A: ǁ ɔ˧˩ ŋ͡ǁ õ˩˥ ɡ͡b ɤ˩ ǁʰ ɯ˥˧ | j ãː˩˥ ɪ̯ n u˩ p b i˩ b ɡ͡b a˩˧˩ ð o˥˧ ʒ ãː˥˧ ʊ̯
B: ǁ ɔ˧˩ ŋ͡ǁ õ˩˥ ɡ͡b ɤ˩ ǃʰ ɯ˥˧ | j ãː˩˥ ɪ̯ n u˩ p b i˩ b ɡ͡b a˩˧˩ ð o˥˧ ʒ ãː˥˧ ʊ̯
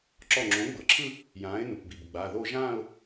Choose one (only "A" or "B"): A